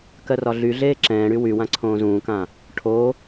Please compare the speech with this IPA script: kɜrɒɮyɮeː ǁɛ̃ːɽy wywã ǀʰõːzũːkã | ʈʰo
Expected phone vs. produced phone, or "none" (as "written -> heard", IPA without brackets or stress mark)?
none